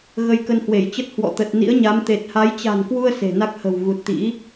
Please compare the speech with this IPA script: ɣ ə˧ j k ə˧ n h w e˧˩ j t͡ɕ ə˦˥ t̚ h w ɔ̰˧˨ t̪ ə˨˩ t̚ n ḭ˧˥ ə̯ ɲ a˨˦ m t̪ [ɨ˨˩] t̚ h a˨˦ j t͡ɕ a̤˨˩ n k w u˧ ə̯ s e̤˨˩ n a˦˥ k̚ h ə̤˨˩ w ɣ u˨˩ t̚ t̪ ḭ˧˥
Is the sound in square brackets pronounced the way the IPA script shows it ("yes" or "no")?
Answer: no